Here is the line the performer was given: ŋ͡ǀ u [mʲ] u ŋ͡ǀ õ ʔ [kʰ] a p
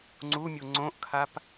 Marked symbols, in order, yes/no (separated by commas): yes, yes